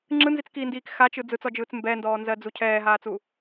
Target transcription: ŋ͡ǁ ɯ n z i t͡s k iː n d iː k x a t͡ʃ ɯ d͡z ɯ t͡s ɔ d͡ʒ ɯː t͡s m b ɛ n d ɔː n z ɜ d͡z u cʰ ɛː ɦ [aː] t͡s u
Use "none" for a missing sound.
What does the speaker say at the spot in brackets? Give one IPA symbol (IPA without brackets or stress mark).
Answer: aː